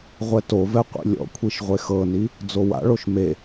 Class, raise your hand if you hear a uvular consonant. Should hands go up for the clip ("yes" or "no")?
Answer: yes